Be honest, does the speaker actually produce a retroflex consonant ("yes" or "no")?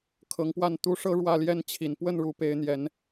yes